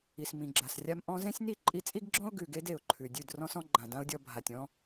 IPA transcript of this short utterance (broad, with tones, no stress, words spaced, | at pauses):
i˨smĩ˨ɡ͡ǁa˨srʲa˧m ʔɔ̃˧zẽ˦sʲ ni˦˨ǃʼi˧t͡sʼi˦ɡɡ͡ǁɔ̃˦ʊ̯ ɡʉ˨ɡe˧d e˨ʊ̯ǃʰʉ˨dʲʉ˦˨d rɔ̃˦s ɔ̃˦ɡ͡ǃã˨dã˦ʊ̯dʲɔ˧ bʱa˨tʲ ɔ̃˧